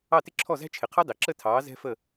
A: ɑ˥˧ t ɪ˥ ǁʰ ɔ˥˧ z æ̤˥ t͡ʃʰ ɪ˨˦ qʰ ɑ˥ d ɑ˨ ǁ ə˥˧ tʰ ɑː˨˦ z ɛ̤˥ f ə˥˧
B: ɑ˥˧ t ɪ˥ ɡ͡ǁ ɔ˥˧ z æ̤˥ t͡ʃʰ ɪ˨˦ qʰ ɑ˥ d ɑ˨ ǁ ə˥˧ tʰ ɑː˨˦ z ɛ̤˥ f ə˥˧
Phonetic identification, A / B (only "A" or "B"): A